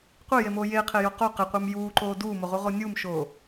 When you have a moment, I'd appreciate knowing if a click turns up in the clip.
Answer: yes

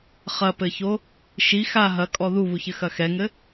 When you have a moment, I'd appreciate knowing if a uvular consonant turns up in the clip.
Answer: yes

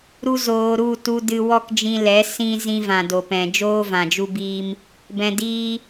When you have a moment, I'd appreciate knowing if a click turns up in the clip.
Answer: no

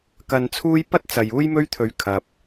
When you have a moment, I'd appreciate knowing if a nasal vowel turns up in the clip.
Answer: no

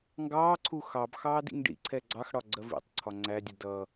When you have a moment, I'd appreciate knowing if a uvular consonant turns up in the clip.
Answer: no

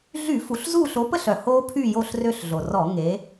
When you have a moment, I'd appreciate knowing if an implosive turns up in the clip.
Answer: no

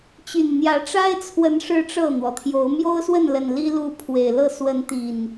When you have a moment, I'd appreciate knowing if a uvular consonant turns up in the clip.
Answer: no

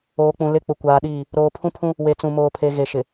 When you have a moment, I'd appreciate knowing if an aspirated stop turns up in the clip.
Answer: yes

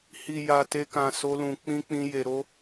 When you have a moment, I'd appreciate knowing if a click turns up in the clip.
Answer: no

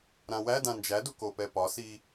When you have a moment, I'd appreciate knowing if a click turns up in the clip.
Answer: no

